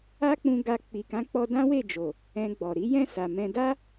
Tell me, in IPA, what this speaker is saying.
a˦ k͡p ũ˧ ɡ a˧ k͡p i˨ k ã˨˦ k͡p ɔ˧ d ã˦ w e˦˨ d͡ʒ o˨ | ɛ̃˧ ɡ͡b ɔ˨ ɾ i˨˦ j ɛ̃˦˨ s a˨ m ɛ̃˧ d a˦

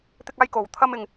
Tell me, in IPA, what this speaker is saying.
t̪ ɪ˥ k̚ aː˥ j k o˨˩ w t̪ʰ ɐ˥ m ɪ˨ ŋ

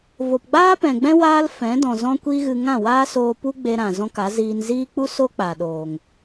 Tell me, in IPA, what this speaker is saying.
v o˨ p ɡ͡b aː˦ p ɛ̃˨ ɡ͡b ɛ̃˦ w aː˦ l f ɛ̃˨˦ d ɔ̃˨ z ɔ̃˦ kʷ i˦ ɣ ɨ˧ ŋ ã˦˨ w aː˦ s oː˧ p u˦ ɡ͡b e˧ ɾ ã˨ z ɔ̃˧ k a˨˦ z iː˧ n z iː˦ k͡p u˦ s o˦ k͡p a˨ ɗ oː˨ ŋ

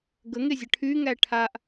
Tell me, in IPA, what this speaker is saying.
ɡ ə ŋ e zʲ ə ʈʰ y ŋ æ ʈʰ a ʔ

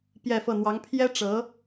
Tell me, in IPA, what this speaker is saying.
p j ɛ˥˧ f ɤ˥˩ n̪ w ɑ˧˥ ŋ pʰ j ɛ˥ ʈ͡ʂ ɤ˧˥

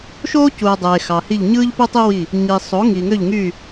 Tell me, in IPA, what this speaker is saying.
ʃ oː˥ c u˨ ɐ̯ dˤ eː˨ x ɑ˨ h i˦˨ ʎ ɲ ɯː˥ ʎ p u˥ tˤ i˥ w i˦˨ | ɲ i˨ sˤ o˨˥ ŋ i˨ ŋ ø˦˨ ʎ ŋ y˦˨

